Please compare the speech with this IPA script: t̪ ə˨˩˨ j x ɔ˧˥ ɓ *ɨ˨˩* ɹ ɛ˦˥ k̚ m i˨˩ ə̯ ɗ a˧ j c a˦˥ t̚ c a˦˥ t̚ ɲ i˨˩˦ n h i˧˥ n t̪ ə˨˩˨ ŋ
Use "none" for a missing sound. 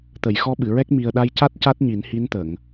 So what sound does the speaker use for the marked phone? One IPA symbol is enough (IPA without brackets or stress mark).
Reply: ɨ˨˩˨